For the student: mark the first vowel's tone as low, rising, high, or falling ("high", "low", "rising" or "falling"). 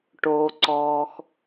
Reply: low